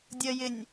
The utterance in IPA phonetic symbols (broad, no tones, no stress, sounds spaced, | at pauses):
dʲ ə j ɪ nʲ